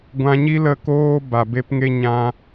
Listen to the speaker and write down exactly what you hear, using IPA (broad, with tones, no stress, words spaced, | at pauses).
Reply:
ɡʷã˧ɲi˦lə˦˨koː˦ ba˨be˦pŋe˦ɲã˦